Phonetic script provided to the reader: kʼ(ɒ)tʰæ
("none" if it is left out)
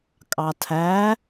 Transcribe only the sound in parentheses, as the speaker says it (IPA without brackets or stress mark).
ɑ